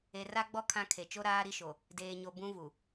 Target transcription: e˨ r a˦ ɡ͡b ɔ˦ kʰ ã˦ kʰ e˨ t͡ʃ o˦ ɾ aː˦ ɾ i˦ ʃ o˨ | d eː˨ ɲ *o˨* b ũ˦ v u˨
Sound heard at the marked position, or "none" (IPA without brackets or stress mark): o˨